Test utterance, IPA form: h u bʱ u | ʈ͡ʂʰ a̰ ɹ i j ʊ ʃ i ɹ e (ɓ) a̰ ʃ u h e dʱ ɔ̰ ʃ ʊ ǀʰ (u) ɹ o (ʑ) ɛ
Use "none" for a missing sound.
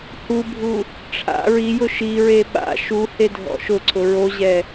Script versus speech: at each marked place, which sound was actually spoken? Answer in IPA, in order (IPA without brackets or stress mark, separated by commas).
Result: ɓ, ʊ, ʑ